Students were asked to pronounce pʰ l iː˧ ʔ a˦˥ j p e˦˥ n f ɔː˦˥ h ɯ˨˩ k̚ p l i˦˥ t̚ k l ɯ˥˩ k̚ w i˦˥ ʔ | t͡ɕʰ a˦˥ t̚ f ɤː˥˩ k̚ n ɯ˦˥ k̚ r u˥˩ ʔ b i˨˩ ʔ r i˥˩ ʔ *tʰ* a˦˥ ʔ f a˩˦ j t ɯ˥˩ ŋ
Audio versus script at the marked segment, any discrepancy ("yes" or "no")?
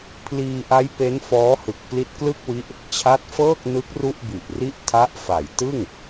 no